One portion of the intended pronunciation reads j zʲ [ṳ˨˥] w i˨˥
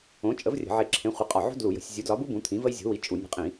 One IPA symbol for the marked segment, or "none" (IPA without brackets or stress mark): o̤˨˥